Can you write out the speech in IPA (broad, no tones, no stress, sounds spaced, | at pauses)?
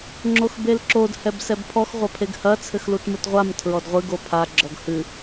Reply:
ŋ͡ǁ o x b e l ǁ o d h ɛ b s ɛ b pʰ ɔ x ʁʷ ɐ pʰ e ɡ h ɐ t͡sʰ ɘ x l u t m ɨ t ʁʷ a m tʰ ɹ ɔ d ʁʷ ɨ ɡ o pʰ a ɡ͡ǁ ɔ ɡ h ɨ